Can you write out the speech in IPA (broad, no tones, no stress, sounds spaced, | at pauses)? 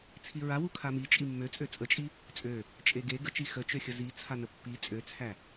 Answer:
t͡sʰ i ɹ a w u kʰ a m i t͡ʃʼ i mː ø t͡sʼ ø t͡sʼ ə t͡ʃʼ i | t͡sʼ ø | t͡ʃʼ e ɡ e ɡ ə t͡ʃ i x ə t͡ʃ ø xʲ ə z i t͡sʰ a n ə pː i t͡sʼ ø t͡sʰ æ